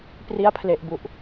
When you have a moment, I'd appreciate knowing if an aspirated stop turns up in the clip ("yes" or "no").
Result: yes